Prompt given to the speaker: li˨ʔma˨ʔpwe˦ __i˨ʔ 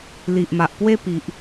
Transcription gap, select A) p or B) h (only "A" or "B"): A